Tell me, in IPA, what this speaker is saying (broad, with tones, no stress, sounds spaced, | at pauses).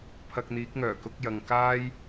pʰ ɐ˧ k̚ n̪ iː˨˥ k̚ ŋ œː˨˩ k ʊ˨˥ k̚ j ɐ˨ ŋ k aː˥ j